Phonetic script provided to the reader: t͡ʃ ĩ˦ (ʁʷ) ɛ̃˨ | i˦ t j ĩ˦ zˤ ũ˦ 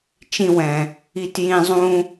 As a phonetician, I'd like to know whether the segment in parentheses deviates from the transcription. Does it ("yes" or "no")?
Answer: yes